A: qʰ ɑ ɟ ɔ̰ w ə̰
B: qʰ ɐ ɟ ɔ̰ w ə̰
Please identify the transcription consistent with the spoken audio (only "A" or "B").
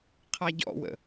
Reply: A